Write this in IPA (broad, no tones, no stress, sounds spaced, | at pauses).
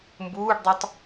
m b uː ɖ dˤ u tˤ